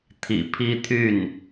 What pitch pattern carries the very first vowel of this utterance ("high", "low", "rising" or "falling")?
low